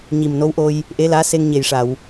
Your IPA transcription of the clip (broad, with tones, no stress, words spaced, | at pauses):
ɲi˨˩mno˧˥wʔo˧j | ʔe˧˥laː˧˥se˧ŋ ɲe˨˩jʂa˨˩˨w